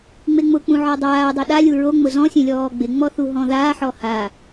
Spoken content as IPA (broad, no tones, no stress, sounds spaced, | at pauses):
ŋ͡m e ŋ͡m ʊ k͡p ũ ʕ ɔ dˤ aː dˤ o ɗ a lʲ u ɹ o ŋ͡m ʊ z ɔ̃ sʲ ẽ lʲ ɔː ɡ͡b ɪ ŋ͡m ɔ θ u ɦ ɔ̃ ð aː ħ ɔ h a